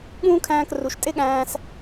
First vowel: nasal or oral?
nasal